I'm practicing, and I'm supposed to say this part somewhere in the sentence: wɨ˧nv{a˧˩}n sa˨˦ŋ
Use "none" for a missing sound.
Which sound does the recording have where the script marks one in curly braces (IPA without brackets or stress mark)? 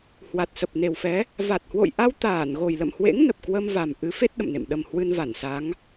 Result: a˧˩